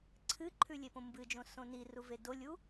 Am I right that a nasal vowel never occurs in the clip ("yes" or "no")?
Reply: no